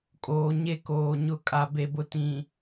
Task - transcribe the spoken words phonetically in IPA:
kʼ oː˨ ɲ e˦ k oː˨ ɲ ʊ˦ kʼ a˨ b e˨ b ʊ˨ t ĩ˨

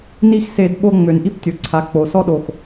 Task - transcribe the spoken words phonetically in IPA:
n i˦ x s e˧˩˧ d ɓ o˦ ŋ͡m ø˩˧ n ʔ i˦ p tʲ o˩˥ ǀʰ a˩˧ k͡p o˩˧ s ɔ˦ ɗ o˨˩ x

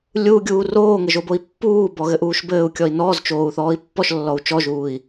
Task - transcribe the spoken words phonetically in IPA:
lʲ u ɡʲ uː r oː ŋ ɘ ʒ o b o i̯ pː uː b ɔ ɣ ɘ ʔ uː ʃ b ɘː u̯ kʲ ɔ i̯ n ɔː z t͡ʃ oː u̯ θ ɔː i̯ pː ɔ ʃ lː ɔ u̯ t͡ʃ ɔ ʒ uː i̯

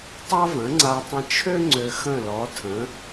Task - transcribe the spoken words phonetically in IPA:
tˤ a˥ v ə̃˩˥ ŋ͡ǀ a˧ tˤ ə̃˧ t͡ʃʰ ø˥ ŋ͡ǀ ø˧ x ə̃˥˩ l ɔ˩˥ tʰ ə̃˩˥

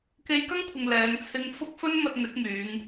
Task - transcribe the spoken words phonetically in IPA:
k e˧ j k ɐ˥ ŋ kʷʰ ɪ˨ ŋ l ɛː˨˧ ŋ t͡sʰ ɪ˧ ŋ f ʊ˥ k̚ f ɵ˧ n m ɐ˨ t̚ n̪ ɪ˨˥ k̚ m yː˨˧ ŋ

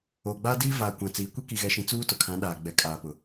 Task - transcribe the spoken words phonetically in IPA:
oː˨ ɡ͡b aː˦ d iː˦ v aː˨ kʷ ã˨ t͡s iː˨ kʷ e˦ k i˨ ɣ ɛ˨ ʃ ĩ˨ t͡s uː˦ t ʊ˨ kʰ ã˨˦ ɗ aː˨ ɡ͡b ɛ˨ kʼ aː˨ p ʊ˨

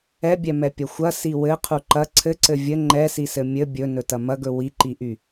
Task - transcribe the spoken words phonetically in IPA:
ɛ bʲ ɛ m ɛ pʲ ɐ xʷ ɐ s i w ɘ qʰ u ǃ ɐ ǀʰ ɘ ǀ ɘ vʲ ɘ ŋ͡ǃ ɛ s i s ɘ mʲ ɘ bʲ ɵ n ɵ t ɐ m ɐ ɡ ɵ w i ǃ i ʔ y

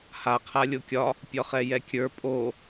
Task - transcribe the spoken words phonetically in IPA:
h a qʰ a lʲ o kʲ ɒ | pʲ ɒ χ ɛ j ɛ kʲ ə˞ pʼ o

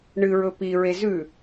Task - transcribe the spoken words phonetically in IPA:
ɳ ɨ ɹ ɵ p i ɹ e z ʉ

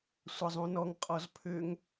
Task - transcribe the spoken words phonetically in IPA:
sʷ ɐ zˤ ũ n ɔ ŋ qʼ ɔ z pʰ ʏ ŋ

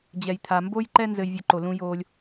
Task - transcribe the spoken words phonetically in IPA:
d͡ʑ ɛ˨ j t̪ʰ a˨ m b o˦ j ǃ ɛ˦ n z ɘ˧ j vʲ ɐ˧ ǃ o˨ l ũ˧ j oː˧ lʲ

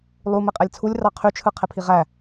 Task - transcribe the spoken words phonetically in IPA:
lˠ u m e qʼ æ lʲ t͡sʰ u lʲ r ɑ qʰ y t͡ʃʰ ɯ qʰ e pʰ i ʁ æ

